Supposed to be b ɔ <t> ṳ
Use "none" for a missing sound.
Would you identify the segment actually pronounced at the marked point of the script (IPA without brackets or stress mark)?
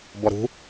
ɾ